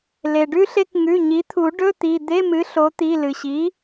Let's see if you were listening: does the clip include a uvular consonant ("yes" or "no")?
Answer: no